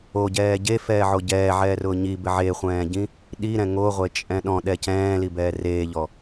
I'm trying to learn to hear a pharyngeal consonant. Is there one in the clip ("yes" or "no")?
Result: yes